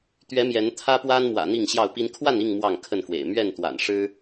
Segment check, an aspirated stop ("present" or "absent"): present